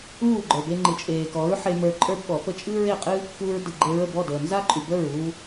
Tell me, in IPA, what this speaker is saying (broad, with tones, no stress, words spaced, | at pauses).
uː˥˩ɡ͡ǃə˞˩be˧ ŋ͡ǃɨ˩t͡ʃʼeː˩kɔ˩˥ɹ ħe˧ mə˞˧ǃʼə˞˥bɓɔ˩˥pə˥˩ t͡ʃʼɨː˥ɹe˥˩qʼɨ˥ | kuː˧ɹdɨ˩ɡ͡ǃe˧ɹə˥˩ bɔ˥˩ dəː˩ nza˥ǃʼy˩ bəː˥˩ɹuː˧